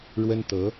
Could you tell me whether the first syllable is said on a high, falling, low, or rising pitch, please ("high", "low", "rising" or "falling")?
high